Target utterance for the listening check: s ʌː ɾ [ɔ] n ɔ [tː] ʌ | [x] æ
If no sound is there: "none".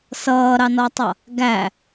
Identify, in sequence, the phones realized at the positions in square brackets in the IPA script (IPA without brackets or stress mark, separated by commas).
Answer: ɑ, tˤ, ɡ